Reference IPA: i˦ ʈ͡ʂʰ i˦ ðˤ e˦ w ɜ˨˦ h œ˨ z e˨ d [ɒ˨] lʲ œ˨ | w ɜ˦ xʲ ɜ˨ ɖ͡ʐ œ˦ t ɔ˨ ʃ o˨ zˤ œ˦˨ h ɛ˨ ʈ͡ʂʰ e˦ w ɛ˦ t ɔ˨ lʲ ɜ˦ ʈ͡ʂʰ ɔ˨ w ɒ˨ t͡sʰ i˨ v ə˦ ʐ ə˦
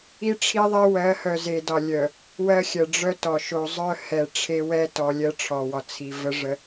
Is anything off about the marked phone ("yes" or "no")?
no